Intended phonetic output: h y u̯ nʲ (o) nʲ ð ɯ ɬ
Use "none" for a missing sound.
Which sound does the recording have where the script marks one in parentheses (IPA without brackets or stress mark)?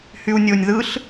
o